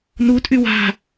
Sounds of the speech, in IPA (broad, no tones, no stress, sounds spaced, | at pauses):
n u tʼ y w a̤